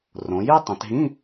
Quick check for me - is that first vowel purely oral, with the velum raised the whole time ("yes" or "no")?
no